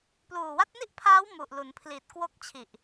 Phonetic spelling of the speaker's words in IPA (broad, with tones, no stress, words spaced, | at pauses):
pluː˨˩wa˦˥t̚ni˥˩ʔpʰaː˦˥w mu˨˩ʔlu˩˦npʰli˨˩t̚ kwo˦˥k̚t͡ɕʰi˨˩ʔ